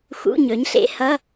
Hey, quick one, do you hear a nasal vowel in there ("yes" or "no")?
no